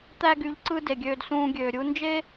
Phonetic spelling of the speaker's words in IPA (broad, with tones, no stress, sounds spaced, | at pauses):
t̪ æ˧ ɡ y˨ ʎ ǀ ɯ˧ d e˨ ɡʲ øː˧ d s ũː˧ ɡʲ øː˨ ɾʲ u˧ n d͡ʒ e˦